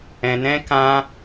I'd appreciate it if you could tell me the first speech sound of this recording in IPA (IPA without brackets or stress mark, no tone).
ɛ̃